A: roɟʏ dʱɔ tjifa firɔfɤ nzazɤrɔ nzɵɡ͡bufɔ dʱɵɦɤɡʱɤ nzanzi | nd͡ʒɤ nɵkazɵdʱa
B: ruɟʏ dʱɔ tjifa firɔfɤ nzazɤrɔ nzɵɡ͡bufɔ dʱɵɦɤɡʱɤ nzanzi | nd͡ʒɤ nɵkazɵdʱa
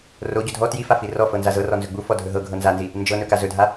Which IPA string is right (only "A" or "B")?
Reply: A